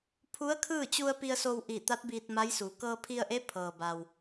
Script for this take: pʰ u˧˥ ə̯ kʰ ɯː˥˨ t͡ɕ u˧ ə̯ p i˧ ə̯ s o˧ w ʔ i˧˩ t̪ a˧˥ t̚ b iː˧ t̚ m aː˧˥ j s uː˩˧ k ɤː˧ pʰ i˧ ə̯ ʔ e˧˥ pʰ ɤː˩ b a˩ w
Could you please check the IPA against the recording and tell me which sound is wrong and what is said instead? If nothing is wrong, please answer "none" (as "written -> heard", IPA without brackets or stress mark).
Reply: aː˧˥ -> a˧˥